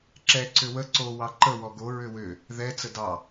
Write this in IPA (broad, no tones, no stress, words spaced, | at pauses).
ǁɛǀʏ wə ǀo wɑǃə wɔɡo ɹʏwʏ | ðɛ t͡sədɑ